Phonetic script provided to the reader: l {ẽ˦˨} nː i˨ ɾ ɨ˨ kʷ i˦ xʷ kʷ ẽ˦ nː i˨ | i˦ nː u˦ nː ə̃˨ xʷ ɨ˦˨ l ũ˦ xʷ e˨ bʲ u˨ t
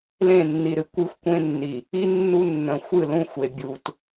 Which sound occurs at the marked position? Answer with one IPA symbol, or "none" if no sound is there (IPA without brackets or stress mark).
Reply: ẽ˦˨